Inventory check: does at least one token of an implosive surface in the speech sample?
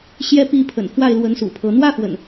no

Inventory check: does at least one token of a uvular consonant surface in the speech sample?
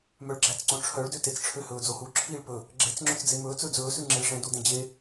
no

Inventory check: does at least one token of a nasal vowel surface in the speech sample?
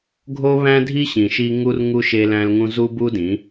yes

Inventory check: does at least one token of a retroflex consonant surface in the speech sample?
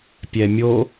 no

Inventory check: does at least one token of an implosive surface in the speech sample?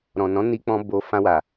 no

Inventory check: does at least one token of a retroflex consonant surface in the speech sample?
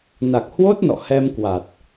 no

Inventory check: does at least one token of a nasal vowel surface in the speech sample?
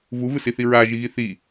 no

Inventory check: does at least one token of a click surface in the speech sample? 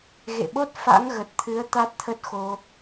no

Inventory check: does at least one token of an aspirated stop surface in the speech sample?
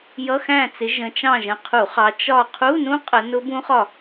yes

